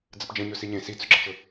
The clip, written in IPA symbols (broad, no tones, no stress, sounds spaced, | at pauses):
d͡z ə p d͡ʒ ə̃ ɲ ɵ s i ɲ ẽ s i t͡s ɵ ɡ͡ǁ ə t͡ʃ ɵ